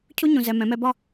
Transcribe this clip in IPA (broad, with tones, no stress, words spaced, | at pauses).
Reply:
cʰu˥ ɲũ˧zɛ˧ mɛ̃˩˧mɛ˧ bɒ˥˧